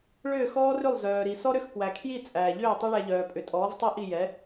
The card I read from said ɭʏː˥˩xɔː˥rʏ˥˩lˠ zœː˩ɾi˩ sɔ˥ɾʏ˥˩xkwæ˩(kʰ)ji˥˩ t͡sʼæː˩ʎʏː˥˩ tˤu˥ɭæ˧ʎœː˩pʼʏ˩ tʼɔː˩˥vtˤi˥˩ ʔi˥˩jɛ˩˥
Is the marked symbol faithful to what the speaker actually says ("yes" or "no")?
yes